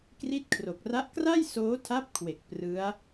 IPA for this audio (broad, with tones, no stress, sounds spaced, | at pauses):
k r i˦˥ t̚ kʰ r o˨˩ k̚ r a˦˥ ʔ k r a˥˩ j s oː˦˥ tʰ a˦˥ p̚ kʰ w e˨˩ k̚ p r ɯ˦˥ a̯